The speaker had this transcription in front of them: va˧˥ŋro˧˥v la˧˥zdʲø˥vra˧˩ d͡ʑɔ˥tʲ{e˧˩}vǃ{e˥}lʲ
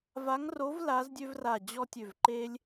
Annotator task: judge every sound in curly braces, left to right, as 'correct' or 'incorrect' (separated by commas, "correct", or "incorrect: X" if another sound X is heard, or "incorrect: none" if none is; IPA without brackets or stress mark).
incorrect: ø˧˩, correct